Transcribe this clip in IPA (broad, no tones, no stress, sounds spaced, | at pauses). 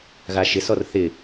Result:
ɣ a ʃ ɪ s ɔ r θ ɪ